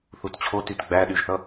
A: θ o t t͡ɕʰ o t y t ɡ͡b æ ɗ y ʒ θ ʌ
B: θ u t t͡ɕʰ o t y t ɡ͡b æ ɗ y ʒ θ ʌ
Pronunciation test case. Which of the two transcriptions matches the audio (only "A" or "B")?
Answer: B